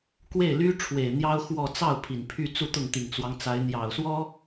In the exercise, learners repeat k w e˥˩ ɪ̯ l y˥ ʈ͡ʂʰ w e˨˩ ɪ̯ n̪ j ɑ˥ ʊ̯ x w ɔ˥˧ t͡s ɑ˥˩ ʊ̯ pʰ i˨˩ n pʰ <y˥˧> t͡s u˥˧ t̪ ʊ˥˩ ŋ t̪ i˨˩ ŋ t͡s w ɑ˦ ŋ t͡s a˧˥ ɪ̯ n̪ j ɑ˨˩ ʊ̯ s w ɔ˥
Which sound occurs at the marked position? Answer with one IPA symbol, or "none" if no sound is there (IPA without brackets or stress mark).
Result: y˥˧